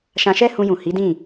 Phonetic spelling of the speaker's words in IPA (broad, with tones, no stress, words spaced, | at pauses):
ʃã˧ʃɛ˦ hũ˧jũ˨hi˨˦dĩ˦˨